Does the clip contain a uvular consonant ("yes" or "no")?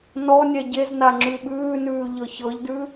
no